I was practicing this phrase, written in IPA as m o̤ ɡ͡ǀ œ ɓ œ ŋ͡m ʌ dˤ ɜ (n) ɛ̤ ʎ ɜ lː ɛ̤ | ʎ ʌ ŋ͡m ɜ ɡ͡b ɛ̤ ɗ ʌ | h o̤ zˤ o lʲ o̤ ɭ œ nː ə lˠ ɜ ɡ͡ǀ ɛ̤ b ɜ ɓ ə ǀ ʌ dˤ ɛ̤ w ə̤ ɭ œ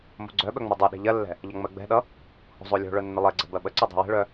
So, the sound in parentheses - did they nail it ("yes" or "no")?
no